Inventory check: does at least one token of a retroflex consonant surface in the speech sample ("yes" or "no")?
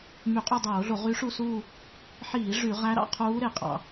yes